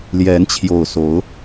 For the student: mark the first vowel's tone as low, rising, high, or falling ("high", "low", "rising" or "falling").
rising